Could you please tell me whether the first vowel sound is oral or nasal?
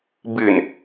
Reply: oral